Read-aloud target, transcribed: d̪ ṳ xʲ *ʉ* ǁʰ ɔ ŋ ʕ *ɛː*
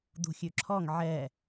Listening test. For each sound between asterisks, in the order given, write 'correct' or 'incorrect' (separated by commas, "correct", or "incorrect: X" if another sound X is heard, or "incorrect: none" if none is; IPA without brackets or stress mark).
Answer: correct, incorrect: ɛ